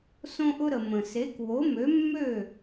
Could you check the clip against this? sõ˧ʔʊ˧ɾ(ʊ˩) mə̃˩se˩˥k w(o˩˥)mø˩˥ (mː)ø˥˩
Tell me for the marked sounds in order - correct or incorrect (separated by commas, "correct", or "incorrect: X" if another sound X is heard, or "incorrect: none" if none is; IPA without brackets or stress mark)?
incorrect: ə˩, correct, correct